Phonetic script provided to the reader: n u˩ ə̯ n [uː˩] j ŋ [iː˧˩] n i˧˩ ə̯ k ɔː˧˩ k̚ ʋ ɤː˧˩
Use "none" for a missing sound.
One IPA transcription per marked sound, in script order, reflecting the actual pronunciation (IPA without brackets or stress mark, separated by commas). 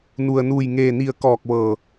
uː˧˩, eː˧˩